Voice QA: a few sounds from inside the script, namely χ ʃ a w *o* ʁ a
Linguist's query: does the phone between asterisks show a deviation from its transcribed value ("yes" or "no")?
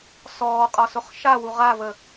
yes